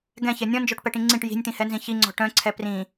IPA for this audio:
ɡɛ̃çɛ nʲɔ̃nd͡ʒɔʈpɛʈĩ ŋ͡ǀĩʈ ji̤nʲt̪ĩhɛnzĩ çiŋ͡ǀɔ̤ ʈœ̃ǀʰɛ prĩ

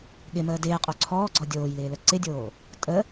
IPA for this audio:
ɠɪməː dɪːqʼo ǀʰɔːɡ͡ǀɔ dʲoːjlɪː ləǀɪdʲoː | tʼə

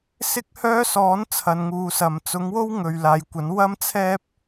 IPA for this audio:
sɪ˥k̚hœː˥sɔː˨˥n t͡sʰɐ˨˧nŋuː˨˧sɐ˨m t͡sʊ˨˥ŋwo˥wŋɵ˨ɥ laː˨˧jkʷɐ˨˥n wɐ˥mt͡sʰɛː˥p̚

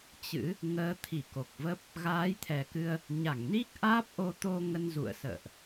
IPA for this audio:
t͡ɕɨ̰˧˥ | ŋəː˨˦t̪ʰi˧˩ko˨˩k̚və˦˥p̚ | ɣaː˨˦jt̪ʰɛ˨˩kɨ˧ə̯ | ɲa˧˩ŋni˦˥k̚ ʔaː˦˥p̚ʔo˧ t̪o˧ ŋə˧nzṵ˧˨ə̯ sə̰ː˧˨ʔ

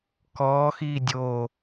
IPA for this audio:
kɔːxiː dʲo

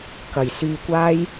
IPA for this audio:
kɐ˨˩jsyː˧kʷaː˥j

